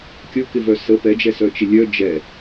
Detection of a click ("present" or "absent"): absent